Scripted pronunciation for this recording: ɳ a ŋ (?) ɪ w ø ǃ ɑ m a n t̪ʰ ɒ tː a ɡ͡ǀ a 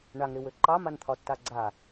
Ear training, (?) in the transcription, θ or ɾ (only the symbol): ɾ